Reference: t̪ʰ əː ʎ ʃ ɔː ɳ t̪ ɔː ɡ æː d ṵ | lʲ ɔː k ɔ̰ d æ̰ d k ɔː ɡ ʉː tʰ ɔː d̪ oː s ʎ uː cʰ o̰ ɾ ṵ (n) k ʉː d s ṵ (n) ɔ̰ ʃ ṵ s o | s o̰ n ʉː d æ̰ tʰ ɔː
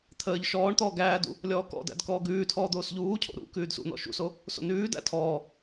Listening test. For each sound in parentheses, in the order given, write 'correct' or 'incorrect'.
incorrect: none, correct

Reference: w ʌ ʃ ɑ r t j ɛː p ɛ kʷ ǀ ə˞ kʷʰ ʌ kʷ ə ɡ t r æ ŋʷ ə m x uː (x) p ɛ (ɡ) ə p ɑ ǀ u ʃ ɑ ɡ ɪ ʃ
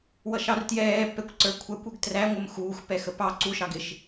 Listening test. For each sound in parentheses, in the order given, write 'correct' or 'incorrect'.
correct, incorrect: x

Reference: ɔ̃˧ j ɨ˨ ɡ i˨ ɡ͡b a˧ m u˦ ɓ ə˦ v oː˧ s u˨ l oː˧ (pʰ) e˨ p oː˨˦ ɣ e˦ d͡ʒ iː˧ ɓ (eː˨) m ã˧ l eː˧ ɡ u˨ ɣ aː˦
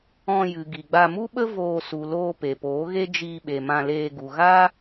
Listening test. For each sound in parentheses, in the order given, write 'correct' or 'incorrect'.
incorrect: p, incorrect: e˨

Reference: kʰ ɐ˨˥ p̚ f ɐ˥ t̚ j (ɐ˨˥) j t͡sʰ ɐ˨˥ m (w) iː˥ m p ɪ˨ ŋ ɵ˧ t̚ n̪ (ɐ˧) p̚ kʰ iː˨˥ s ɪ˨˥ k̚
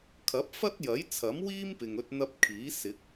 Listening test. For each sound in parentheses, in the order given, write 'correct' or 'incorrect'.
correct, correct, correct

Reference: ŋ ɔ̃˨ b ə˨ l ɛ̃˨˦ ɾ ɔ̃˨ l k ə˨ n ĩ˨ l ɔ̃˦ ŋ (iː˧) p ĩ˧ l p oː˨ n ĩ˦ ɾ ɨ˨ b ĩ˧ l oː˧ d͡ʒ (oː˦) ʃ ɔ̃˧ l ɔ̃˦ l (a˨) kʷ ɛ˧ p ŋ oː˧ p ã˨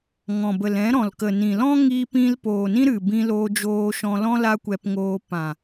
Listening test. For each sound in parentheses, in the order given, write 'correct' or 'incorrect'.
correct, incorrect: oː˧, incorrect: a˦

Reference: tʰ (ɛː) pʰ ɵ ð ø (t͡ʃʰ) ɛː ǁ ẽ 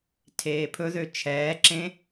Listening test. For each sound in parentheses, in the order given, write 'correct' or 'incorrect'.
incorrect: eː, correct

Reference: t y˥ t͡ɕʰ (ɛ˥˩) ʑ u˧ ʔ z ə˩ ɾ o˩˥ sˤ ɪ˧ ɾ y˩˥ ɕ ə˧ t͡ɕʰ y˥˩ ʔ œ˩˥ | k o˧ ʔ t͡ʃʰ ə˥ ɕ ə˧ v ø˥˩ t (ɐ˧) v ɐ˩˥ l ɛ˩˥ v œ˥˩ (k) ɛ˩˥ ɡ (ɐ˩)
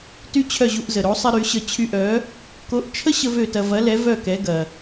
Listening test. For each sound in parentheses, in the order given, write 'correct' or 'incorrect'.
incorrect: œ˥˩, correct, correct, correct

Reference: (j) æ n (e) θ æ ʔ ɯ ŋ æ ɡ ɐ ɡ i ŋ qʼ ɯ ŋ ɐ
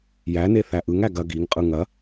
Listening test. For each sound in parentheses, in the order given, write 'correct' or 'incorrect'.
correct, correct

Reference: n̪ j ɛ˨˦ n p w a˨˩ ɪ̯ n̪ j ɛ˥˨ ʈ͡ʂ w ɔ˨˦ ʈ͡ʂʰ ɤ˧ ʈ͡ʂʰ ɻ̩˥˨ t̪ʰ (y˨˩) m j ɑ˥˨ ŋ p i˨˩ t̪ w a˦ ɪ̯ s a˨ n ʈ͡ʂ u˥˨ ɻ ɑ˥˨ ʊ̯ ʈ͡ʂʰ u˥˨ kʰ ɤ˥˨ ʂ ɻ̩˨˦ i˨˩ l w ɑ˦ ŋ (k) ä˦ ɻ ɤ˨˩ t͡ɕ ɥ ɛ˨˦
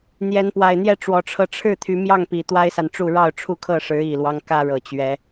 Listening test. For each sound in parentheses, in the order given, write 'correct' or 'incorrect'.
incorrect: y˨˦, correct

